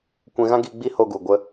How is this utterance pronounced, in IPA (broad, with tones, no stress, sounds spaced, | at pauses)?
kʷ ɛ̃˧ ɣ ã˦ ɡ iː˧ ɡ͡b i˦ h o˧ ɡ u˨ ɡʷ ə˧